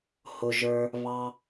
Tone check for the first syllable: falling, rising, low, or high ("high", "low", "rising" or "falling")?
low